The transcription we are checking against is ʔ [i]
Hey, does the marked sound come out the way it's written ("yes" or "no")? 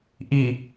yes